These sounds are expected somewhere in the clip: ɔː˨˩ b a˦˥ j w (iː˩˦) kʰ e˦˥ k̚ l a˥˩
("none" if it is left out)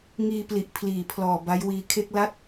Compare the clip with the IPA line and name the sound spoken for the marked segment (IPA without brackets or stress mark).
iː˧